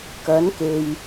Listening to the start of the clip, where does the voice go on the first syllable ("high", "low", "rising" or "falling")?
rising